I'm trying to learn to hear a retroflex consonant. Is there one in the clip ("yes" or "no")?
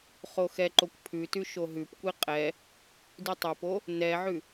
no